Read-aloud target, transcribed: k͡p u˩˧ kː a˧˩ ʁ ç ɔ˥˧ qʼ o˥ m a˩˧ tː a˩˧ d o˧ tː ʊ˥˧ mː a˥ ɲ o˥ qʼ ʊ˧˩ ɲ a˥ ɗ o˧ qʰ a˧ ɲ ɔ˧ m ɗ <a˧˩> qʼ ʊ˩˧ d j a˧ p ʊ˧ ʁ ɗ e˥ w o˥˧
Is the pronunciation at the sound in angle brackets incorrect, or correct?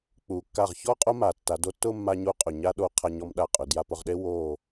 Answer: correct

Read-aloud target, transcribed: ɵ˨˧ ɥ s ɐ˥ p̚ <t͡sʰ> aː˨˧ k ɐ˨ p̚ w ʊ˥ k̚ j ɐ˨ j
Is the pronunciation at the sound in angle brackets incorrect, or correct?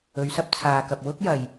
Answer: correct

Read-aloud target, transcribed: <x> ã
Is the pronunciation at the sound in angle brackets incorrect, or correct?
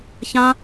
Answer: incorrect: ç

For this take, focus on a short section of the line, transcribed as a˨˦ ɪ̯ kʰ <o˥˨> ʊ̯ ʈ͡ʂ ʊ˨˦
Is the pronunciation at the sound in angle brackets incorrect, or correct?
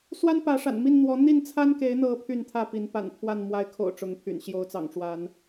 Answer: incorrect: o̰˨˩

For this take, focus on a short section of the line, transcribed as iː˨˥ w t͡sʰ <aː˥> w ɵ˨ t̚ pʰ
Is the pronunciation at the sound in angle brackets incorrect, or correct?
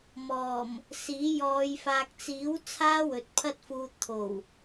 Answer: correct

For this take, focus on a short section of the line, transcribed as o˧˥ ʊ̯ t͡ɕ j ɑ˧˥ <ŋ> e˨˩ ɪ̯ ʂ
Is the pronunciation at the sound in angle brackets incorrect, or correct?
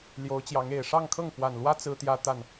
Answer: correct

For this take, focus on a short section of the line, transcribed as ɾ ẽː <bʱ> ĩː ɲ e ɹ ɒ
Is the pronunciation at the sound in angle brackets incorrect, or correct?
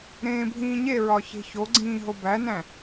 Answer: correct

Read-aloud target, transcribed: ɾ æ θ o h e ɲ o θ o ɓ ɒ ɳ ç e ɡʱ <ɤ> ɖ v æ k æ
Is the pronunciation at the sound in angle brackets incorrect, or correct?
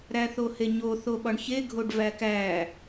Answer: incorrect: o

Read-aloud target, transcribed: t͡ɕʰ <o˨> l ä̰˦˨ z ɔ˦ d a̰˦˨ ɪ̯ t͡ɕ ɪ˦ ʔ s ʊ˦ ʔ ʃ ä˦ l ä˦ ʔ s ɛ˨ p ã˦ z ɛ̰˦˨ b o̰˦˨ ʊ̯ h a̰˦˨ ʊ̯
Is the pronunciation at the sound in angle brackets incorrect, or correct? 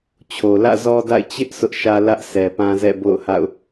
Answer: correct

